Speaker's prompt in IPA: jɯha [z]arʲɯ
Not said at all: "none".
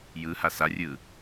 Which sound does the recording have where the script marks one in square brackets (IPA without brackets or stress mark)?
s